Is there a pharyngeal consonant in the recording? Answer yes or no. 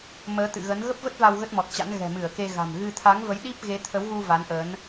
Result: no